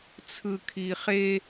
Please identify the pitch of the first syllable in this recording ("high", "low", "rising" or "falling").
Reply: low